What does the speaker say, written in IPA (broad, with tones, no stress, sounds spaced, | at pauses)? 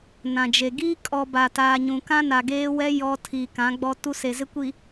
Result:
n ã˨ d͡ʒ e˨ ɡ iː˦ kʼ ɔ˨ b a˨ t aː˨ ɲ ũ˨ k ã˦ n a˨ ɡ eː˦ w ɛ˦ j ɔ˦ tʰ iː˨ k ã˨˦ ɡ͡b ɔ˦ t u˦ s e˨ z ɪ˦ kʷ i˨